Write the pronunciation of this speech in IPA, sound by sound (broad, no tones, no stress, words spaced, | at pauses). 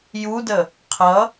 judə | qʰʌ